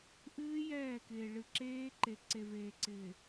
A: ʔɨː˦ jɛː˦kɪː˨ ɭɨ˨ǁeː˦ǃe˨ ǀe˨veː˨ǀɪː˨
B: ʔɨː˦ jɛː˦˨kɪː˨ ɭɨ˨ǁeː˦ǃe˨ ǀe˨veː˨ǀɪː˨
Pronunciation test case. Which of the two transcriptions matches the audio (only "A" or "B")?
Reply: B